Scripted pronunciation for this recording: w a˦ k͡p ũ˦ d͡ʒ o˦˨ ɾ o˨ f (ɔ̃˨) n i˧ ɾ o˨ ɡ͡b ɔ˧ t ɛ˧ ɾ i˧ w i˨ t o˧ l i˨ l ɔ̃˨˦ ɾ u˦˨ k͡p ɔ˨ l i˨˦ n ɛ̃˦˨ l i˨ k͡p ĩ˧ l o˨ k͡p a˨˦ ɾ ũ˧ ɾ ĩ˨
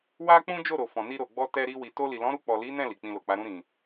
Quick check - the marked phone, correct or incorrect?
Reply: correct